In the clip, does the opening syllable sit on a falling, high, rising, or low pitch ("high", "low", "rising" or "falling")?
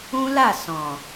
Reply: high